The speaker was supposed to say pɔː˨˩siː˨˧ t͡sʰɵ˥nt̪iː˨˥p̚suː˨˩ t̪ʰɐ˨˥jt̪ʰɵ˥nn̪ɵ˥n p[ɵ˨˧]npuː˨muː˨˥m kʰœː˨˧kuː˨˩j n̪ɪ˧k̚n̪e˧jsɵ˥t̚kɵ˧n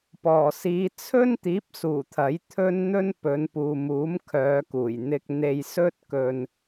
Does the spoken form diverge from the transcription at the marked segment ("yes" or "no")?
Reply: no